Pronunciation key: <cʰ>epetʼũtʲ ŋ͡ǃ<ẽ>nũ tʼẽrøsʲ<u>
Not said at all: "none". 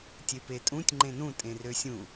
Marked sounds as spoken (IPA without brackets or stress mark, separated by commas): tʲ, ẽ, ũ